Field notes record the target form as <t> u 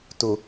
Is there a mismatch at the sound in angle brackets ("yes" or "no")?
no